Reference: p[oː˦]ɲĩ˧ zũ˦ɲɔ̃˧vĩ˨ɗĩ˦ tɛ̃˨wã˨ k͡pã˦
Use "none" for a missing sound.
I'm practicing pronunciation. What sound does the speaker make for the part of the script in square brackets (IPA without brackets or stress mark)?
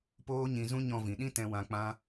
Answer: oː˦